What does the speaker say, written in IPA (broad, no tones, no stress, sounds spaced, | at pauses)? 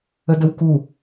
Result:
ə d ə w k u